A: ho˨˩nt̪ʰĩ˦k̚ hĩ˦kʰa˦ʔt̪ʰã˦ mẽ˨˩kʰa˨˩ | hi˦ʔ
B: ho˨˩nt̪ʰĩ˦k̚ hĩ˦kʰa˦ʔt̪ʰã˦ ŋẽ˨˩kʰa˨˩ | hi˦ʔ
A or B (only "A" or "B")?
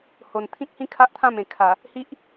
A